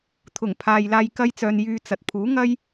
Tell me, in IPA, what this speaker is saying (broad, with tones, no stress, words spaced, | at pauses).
t̪ʰʊ˨˩ŋpʰaː˨jlaː˧j kɐ˥jt͡sœː˧n jyː˧t͡sɐ˨t̚ pʰuː˨˥ŋɐ˥j